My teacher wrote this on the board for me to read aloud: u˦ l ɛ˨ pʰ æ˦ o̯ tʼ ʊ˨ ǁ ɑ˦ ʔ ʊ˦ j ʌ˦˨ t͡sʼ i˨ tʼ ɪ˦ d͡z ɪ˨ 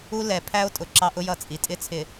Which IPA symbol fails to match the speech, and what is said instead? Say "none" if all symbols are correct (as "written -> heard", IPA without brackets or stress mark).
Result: d͡z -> t͡sʰ